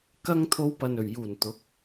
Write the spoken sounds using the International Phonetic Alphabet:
kɐ˧ŋt̪ʰo˨˧w pɐ˨nɵ˨˩ɥjuː˨˩n t̪ʊ˨˥k̚

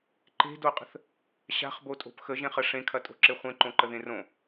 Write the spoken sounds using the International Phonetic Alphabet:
ǃe̤doqʼə̤θ | ɕa̤χbotʼo̤p xəʒẽχə ʂẽkʰɐtʼo̤ǁe χʷẽǃõǃəðẽ rõ

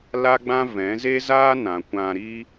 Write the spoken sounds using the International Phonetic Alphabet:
la˦ɡ͡bã˦vɛ̃˨˦ ze˦zaː˦nã˨ kʷã˧ɾi˦

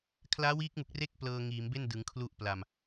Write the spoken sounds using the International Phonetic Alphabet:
kʰlaː˦˥wiː˦˥k̚mu˨˩k̚ re˥˩k̚ plɤː˧ŋiː˩˦mbe˥˩n dɯ˩˦ŋkʰlu˥˩ʔpla˨˩m

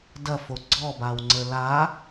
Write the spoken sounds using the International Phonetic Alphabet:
dɐfo ɡ͡ǀɔbawŋ͡ǀə la

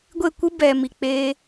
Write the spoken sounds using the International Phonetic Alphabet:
ɡʷe˦˨kʷɨ˦ bɛ˨ mi˨ k͡peː˧

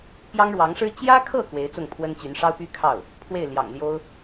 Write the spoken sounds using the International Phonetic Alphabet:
pjɑ˥ŋɻwɑ˧˥ŋʂɻ̩˥ t͡ɕjä˥kʰɤ˥˩ kwe˧˥ɪ̯t͡sʊ˥˩ŋpʰwə˥nt͡ɕy˧˥n ʂɑ˥ʊ̯py˥kʰɑ˥˩ʊ̯ | pʰwe˥˩ɪ̯ljɑ̰˨˩ŋljo˥ʊ̯

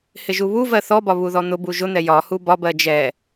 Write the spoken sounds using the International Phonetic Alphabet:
hɪʒuβuvɜ θɔbɒ βuðɔn̪ʊbu ʒʊn̪ɛ jɒ hubɒbɜ d͡ʒɛ

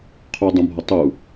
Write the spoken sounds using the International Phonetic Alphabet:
qʰudˤũbʱʌ tˤu

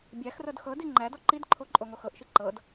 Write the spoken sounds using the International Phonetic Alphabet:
bʲæxrɤd xɤdi ŋ͡ǃædɔ ǃidǃʰo ǃʼoŋoxɤʔʃi ǃɤd

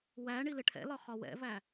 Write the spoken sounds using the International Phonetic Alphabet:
wæ ɳilɪʈʰɛ̰lɒ χɒwɛ̰væ

